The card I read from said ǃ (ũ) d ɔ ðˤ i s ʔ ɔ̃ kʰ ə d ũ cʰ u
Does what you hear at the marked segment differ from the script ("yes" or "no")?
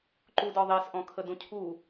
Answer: yes